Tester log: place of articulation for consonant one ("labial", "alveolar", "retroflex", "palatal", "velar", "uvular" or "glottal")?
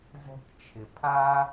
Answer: alveolar